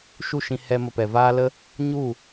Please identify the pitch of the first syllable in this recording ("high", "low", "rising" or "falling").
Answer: falling